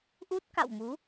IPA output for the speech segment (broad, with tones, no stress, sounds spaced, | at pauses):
ʔ u˦˥ t̚ k a̰˧˨ w m u˨˦